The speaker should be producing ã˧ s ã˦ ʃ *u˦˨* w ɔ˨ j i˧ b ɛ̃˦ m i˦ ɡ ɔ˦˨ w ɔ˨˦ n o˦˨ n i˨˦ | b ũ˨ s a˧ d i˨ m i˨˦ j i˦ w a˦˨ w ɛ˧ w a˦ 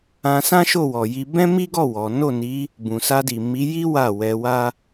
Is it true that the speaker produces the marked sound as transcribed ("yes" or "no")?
no